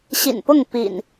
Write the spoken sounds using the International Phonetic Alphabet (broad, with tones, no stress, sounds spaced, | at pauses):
ɕ ḭ˨˩ n p ʊ˥˨ ŋ p ḭ˨˩ n